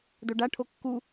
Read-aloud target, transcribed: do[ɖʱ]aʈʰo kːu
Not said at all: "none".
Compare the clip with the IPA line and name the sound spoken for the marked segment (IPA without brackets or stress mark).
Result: ɖ